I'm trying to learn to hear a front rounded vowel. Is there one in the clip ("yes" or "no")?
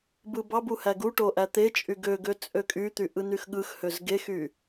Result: yes